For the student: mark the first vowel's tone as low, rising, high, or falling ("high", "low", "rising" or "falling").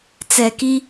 low